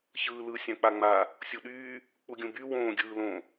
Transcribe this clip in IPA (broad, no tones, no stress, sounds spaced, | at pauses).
ç ɯː l ɯ sʲ ã k͡p a ŋ͡m a | sʲ u ɗ yː | k͡p u ɡʲ ũ b y w õː ɡʲ ɯː l õ